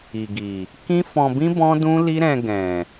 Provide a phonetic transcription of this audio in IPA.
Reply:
i˨ ɡ i˨ | k ĩ˦ f ɔ̃˧ b ĩ˦ b ɔ̃˦ d ũ˦ l i˦ ɾ ɛ̃˧ ɡ ɛ̃˨

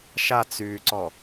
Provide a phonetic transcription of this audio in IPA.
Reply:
ʃ a t͡s yː ǀ ɔ

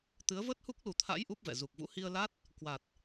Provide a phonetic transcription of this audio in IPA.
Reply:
t̪ ɨ˨˦ ə̯ v ə˦˥ t̚ h u˦˥ k̚ l u˨˩ t̪ʰ a̰˧˥ j ʔ u˦˥ p̚ v ɛ̰˧˨ z u˨˩ k̚ v ṵ˧˥ h i˧ ə̯ l a˦˥ t̚ | k w a˨˩ t̚

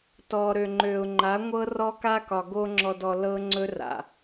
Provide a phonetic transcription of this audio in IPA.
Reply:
t ɔ˨ ɾ ø˨ ŋ͡ǃ ø˨ ʊ̯ ŋ͡ǃ a˨˦ ŋʷ ɤ˦ r ɔ˦ k a˦ k ɒ˨ ɡ o˦ ŋ͡ǁ ɔ˨ d ɔ˨ l ɤ˦ ŋ͡ǀ ɵ˦ r a̰˨

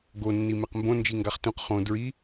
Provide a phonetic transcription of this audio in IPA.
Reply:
ɡ o nː i m e q m b õ n d͡ʒ i ŋ ɡ a χ t ũ q χ õ d ɹ i

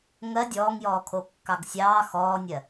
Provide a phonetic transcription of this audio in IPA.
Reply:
ŋ ɜ dʲ ɔː ŋ j ɔː kʰ o kː ɑ ɡ sʲ ɑː x ɔː nʲ ɜ

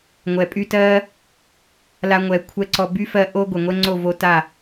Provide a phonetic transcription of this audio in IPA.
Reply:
ŋʷ ɛ˨ pʼ y˦ t ɜ˦ | l a˧ ŋʷ ɛ˨ kʷʰ ɛ˦ ǀ ɔ˧ b y˦ f ɜ˧ ʔ o˦ ɡʷ e˨ ŋʷ ɛ˦ ŋ͡ǀ o˦˨ v o˧ t a˦˨

